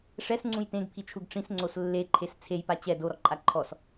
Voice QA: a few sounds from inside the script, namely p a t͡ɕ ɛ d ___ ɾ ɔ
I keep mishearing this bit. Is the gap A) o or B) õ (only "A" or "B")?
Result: A